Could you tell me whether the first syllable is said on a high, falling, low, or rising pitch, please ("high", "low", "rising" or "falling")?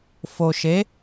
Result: low